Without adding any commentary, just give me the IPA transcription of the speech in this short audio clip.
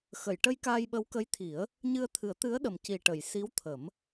x ə˨˩˨ j ʈ ə˧ j k aː˧ j ɓ ə˧˥ w k ə˧˥ j t̪ʰ i˨˩˦ ə̯ | ɲ ɨ˧ ə̯ t̪ʰ ɨ˨˩˦ ə̯ t̪ ɨ˧˥ ə̯ ɗ ə˨˩ m c i˨˩ ʈ ə˨˩˨ j s i˧˥ w t̪ʰ ə˨˩˦ m

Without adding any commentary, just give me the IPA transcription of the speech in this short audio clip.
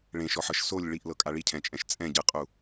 ɭ ẽ ʃ ɔ ħ ɤ ʃ s o lʲ ɭ i ʔ l ɤ kʼ a ɭ i cʰ ɛ̃ t͡ʃʼ ɛ̃ ʃ t͡sʼ ɛ̃ ɟ ɯ qʼ u

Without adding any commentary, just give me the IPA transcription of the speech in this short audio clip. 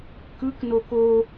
k ɯ k n o k o

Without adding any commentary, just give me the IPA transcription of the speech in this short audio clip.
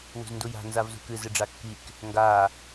w ṳ z n d u j a̤ n z a v z ṳ k ɨ z ɨ ɖ͡ʐ a kː i k | ŋ ɡ a

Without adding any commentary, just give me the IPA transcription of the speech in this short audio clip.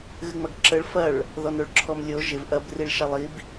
ɣ ɨ ŋ͡m ɐ ɡ ǁ ə ɭ f ɐ ɭ | ð ɔ n o ɭ ǁʰ ɔ m lʲ o ʒ ɪ v ʔ ɐ b r i ɭ ʃ ɑ lˠ i b

